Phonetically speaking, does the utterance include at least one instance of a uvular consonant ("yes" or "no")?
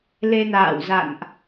no